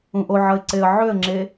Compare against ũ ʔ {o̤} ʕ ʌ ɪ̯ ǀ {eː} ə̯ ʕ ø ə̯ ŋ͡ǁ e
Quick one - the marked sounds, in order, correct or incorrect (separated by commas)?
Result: incorrect, incorrect